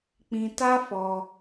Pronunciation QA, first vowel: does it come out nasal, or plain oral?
nasal